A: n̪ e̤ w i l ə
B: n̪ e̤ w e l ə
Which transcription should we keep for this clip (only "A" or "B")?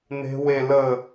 B